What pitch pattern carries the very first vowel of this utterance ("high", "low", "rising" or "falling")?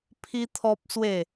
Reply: high